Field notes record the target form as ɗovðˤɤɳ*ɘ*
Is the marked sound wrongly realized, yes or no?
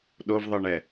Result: yes